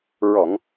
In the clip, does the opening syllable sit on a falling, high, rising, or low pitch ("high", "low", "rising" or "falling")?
low